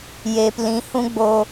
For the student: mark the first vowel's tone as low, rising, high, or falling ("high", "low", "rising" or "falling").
low